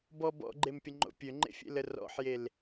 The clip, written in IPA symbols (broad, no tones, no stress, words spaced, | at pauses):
bɔ bɔ̰ɡ͡ǃempʲəŋ͡ǃo̰ pʲøŋ͡ǃḛfʲḛlə rɔ̰ħjel